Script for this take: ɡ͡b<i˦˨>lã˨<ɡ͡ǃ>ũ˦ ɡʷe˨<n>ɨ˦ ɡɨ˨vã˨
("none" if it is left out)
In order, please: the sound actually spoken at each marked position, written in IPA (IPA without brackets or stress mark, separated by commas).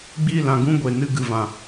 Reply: i˦˨, ɡ, n